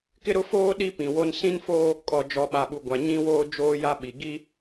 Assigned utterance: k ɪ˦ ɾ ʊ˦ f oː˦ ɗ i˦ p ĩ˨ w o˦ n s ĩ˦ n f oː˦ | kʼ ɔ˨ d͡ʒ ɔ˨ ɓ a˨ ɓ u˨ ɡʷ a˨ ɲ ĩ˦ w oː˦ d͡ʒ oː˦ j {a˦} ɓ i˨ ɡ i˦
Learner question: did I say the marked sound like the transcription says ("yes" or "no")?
yes